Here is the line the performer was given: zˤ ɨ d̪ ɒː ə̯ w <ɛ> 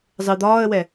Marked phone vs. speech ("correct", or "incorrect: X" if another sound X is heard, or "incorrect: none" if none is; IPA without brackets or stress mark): correct